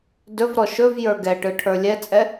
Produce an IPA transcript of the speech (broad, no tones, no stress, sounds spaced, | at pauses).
d ɵ v ɾ ɔ ʃ ɵ v j ə˞ ɡ ɛ ʈ ɯ ʈʰ ə˞ lʲ ɛ t͡sʼ ɛ